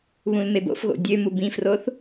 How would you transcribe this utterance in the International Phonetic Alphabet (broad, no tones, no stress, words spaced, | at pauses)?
βũlmebo̰fɣo̰ dʲø mubĩfroθ